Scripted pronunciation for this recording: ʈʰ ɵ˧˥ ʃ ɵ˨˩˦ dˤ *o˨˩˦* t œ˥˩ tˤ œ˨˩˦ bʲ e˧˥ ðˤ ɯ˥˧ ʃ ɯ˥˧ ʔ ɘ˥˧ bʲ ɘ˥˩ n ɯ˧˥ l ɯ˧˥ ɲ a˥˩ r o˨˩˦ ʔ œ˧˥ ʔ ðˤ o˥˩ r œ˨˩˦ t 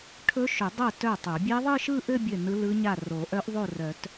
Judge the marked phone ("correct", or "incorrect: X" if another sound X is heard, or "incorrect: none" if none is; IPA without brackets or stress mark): incorrect: o˥˩